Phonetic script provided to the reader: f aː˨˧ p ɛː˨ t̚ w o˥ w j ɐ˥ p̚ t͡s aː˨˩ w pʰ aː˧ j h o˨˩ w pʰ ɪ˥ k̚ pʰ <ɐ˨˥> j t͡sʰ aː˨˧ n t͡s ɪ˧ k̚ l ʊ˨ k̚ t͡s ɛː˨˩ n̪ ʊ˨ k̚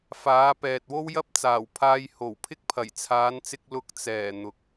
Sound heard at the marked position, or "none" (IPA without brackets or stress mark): ɐ˨˩